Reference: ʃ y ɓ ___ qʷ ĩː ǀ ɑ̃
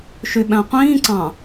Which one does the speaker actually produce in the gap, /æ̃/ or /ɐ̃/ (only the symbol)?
æ̃